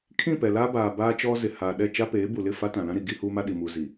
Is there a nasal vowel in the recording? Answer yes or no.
yes